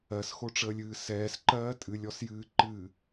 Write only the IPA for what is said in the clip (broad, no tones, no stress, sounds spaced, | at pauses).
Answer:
ɜ s x o ʈ͡ʂ əː lʲ ɨː s ɛː s ǃ ɜː tʼ ɨ lʲ ɔ s j ɨː ǃ ɨː